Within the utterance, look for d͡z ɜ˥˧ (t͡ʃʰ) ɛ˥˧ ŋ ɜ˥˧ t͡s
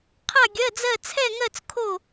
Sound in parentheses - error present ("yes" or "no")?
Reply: yes